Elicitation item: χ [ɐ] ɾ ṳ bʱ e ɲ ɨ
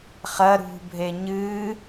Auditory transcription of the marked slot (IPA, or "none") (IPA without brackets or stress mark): ɐ